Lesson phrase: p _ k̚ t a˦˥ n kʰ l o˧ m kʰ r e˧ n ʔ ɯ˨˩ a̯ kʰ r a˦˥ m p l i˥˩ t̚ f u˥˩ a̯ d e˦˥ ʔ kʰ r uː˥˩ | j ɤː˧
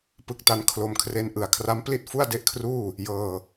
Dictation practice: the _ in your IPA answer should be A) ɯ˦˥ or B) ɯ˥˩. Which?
A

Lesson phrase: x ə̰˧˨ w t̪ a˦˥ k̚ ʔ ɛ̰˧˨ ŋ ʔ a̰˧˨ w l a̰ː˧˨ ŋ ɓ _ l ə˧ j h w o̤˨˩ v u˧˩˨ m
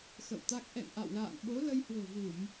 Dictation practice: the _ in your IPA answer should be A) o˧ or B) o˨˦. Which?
B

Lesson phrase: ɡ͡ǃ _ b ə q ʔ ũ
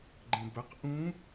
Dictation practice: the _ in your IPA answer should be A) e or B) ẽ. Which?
B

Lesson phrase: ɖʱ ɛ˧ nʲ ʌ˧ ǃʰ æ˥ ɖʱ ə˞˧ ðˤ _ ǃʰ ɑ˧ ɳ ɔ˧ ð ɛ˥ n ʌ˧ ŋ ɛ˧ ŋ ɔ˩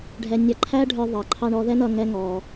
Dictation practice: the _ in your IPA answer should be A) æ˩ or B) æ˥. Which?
A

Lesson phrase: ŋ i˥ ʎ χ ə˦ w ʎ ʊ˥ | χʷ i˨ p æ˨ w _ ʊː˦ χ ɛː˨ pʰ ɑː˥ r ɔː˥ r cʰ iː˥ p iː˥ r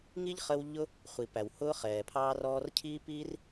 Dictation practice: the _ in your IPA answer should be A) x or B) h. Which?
B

